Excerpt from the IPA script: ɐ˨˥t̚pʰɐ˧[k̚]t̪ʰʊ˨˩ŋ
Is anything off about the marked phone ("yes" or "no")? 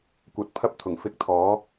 yes